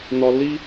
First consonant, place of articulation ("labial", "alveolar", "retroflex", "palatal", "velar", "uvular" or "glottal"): alveolar